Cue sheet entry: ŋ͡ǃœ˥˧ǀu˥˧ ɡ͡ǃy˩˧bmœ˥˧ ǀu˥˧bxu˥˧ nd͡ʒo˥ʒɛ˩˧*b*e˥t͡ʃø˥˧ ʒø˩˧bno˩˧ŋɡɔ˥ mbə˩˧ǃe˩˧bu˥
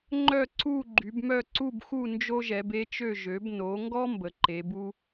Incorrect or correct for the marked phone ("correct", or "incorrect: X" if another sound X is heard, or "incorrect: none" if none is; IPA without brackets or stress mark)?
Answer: correct